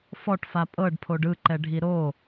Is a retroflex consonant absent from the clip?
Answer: no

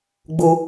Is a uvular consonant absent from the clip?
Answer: yes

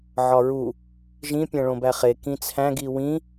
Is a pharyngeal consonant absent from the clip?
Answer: no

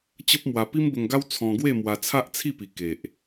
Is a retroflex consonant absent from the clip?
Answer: yes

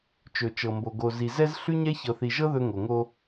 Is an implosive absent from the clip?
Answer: yes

